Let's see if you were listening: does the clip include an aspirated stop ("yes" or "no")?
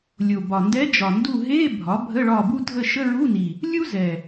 no